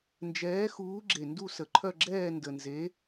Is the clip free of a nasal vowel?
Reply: yes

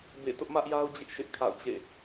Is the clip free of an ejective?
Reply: yes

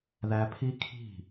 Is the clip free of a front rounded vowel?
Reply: yes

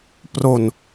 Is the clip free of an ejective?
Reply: yes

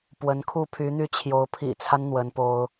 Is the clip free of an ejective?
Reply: yes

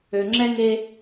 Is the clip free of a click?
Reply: no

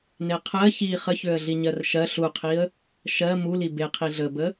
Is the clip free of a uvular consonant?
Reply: no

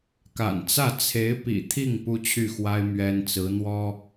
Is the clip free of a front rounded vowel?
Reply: no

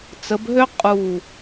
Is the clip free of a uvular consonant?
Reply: no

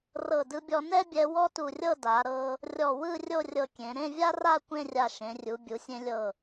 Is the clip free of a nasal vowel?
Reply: no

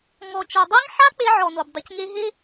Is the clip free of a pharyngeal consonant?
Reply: no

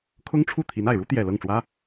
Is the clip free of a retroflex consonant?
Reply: no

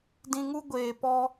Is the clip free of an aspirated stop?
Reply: yes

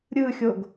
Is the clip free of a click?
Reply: yes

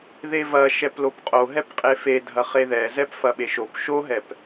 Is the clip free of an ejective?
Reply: no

